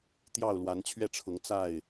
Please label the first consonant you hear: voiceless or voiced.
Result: voiceless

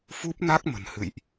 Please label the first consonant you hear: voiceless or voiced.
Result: voiceless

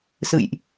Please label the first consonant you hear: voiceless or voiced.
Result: voiceless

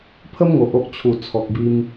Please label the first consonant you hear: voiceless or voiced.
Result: voiceless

